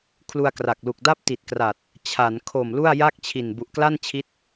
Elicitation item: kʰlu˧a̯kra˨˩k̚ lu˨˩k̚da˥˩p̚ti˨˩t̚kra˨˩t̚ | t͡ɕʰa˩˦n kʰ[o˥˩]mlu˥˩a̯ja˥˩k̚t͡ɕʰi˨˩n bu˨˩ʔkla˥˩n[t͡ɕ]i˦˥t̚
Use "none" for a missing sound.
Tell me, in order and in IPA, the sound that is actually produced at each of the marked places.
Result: o˨˩, t͡ɕʰ

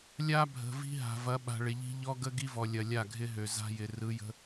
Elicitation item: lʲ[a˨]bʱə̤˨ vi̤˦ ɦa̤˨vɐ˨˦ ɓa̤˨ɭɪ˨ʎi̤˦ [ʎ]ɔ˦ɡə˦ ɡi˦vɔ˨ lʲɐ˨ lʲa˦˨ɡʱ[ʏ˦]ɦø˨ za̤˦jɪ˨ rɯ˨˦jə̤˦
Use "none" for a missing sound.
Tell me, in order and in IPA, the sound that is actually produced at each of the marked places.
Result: a˦, ʎ, ɪ˦

